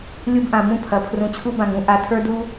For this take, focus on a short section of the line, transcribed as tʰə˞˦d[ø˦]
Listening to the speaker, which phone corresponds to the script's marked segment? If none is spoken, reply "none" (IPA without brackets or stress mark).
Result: u˦